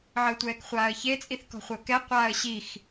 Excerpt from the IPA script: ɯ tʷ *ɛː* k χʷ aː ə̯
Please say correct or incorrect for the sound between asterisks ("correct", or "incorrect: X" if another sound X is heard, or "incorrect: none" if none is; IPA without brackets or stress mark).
correct